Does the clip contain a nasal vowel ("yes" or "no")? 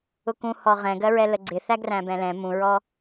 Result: yes